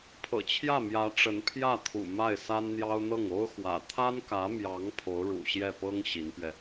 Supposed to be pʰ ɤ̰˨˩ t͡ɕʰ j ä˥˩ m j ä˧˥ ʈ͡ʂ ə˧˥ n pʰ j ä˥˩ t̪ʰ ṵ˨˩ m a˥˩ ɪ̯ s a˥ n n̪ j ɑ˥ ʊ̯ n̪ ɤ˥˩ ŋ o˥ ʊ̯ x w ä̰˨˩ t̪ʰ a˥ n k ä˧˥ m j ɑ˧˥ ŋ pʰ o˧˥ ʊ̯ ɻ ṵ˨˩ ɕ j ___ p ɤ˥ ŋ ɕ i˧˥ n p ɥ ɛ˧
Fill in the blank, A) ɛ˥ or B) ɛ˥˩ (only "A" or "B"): B